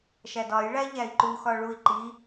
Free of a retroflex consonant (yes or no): no